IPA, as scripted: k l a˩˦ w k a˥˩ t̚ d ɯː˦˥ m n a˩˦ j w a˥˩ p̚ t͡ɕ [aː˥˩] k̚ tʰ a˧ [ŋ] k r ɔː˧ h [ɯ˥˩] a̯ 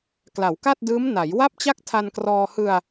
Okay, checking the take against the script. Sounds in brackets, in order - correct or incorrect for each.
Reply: incorrect: a˥˩, incorrect: n, incorrect: ɯ˧

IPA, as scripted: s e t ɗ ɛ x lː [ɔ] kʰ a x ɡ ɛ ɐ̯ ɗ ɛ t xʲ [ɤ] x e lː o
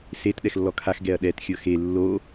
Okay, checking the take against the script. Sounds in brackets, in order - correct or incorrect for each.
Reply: correct, correct

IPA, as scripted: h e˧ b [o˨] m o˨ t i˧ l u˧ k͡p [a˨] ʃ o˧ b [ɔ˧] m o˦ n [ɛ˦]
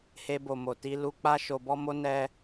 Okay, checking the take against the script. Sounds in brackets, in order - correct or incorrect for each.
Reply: correct, incorrect: a˦, incorrect: ɔ˦, correct

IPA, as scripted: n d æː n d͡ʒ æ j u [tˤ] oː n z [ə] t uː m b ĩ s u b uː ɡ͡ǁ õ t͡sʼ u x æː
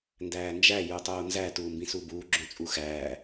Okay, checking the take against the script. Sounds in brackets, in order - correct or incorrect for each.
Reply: correct, incorrect: æ

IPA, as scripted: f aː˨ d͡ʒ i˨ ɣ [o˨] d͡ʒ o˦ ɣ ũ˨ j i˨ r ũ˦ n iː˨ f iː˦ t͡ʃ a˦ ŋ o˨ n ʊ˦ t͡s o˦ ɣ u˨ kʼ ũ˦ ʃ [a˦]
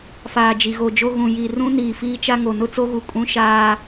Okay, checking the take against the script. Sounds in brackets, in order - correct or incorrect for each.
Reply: correct, incorrect: aː˦

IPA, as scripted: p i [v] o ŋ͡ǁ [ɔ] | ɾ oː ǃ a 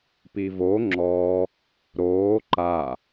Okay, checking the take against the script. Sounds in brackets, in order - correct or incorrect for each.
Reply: correct, correct

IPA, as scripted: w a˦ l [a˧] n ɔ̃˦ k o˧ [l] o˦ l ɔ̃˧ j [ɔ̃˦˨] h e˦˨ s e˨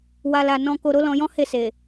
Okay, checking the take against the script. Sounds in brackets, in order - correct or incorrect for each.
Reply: correct, incorrect: ɾ, incorrect: ɔ̃˦

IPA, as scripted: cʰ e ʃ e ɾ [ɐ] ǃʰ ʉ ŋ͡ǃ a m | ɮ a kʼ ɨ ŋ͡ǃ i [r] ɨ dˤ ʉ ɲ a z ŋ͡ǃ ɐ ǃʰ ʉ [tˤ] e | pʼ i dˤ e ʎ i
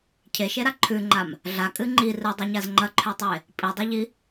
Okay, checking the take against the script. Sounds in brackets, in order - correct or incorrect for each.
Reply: incorrect: a, correct, correct

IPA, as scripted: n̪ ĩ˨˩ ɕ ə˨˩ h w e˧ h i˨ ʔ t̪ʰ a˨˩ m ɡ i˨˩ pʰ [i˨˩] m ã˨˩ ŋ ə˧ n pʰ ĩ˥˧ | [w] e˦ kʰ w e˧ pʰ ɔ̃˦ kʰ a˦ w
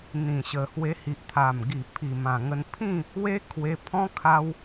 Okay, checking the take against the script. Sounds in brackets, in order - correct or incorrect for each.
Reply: correct, correct

